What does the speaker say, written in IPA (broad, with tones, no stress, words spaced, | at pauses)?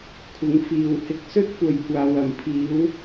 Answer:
kʷʰɪ˨˥ŋfiː˨w hɪ˨˥k̚sɵ˥t̚kʷɐ˨j kʷaː˨wɐ˨˩mpʰiː˨˥w